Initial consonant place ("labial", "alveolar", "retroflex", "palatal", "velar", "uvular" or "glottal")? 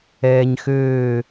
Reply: palatal